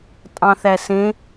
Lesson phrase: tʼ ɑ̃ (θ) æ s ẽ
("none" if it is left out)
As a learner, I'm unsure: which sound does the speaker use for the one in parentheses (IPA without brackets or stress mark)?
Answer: θ